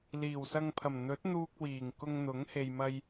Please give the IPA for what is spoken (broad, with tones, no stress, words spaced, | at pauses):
liː˨˩wsɐ˧ŋpʰɐ˨˩m n̪ɵ˨˥t̚n̪uː˧k̚ wiː˨˩ŋkʊ˧ŋn̪ʊ˨˥ŋ he˨jmɐ˧j